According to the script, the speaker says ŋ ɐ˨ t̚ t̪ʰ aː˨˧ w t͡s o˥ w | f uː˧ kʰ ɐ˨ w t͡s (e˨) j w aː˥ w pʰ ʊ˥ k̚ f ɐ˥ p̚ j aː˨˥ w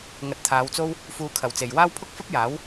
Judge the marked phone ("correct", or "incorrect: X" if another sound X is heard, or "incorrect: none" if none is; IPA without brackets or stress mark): correct